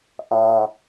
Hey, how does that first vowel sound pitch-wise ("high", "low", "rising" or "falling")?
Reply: low